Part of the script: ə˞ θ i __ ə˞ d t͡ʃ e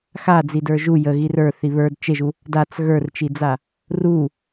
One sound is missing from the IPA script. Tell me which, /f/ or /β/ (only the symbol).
β